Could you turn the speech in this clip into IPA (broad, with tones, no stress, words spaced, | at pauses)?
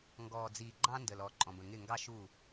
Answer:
ŋɡɔː˨d͡ziː˨ɡ͡ǃɑ̃˦ ndə˨lɔ˨˦ ǃʼɔ̃˨bə̃˨ ŋɪ˦˨ŋɡɑ˦ʃu˦˨